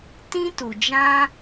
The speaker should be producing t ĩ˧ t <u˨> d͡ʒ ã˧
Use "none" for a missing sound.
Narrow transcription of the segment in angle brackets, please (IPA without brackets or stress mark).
u˨